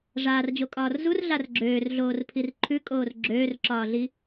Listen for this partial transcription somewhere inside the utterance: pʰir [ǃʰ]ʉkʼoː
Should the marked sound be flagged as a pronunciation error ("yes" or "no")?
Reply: no